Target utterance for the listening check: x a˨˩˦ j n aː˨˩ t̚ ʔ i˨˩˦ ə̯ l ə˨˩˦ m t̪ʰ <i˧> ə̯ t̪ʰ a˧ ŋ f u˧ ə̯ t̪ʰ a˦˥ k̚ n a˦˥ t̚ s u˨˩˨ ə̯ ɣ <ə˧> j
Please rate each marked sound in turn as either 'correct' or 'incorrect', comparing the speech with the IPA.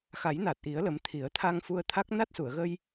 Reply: incorrect: i˨˩˦, correct

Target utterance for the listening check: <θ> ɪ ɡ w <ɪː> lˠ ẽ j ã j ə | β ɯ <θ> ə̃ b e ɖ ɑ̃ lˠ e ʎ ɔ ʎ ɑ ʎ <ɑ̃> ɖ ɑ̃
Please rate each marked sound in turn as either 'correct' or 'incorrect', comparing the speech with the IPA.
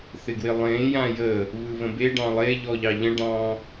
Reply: correct, incorrect: ɪ, incorrect: β, incorrect: ə̃

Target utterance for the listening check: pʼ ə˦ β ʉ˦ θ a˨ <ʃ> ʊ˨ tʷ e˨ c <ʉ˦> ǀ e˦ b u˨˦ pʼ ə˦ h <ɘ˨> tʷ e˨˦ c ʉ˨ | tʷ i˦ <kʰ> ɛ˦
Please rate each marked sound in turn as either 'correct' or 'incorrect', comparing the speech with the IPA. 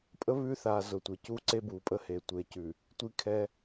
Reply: incorrect: z, incorrect: u˦, incorrect: e˨, correct

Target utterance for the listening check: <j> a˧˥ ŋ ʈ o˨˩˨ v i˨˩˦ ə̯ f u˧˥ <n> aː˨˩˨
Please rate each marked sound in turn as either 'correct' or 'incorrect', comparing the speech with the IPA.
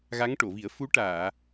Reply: incorrect: ɣ, incorrect: ʈ

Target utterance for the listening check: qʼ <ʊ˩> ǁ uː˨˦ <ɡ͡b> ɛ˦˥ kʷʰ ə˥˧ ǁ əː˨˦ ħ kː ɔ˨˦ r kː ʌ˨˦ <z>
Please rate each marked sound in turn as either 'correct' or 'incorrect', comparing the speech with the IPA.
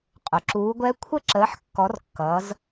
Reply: correct, incorrect: ɡʷ, correct

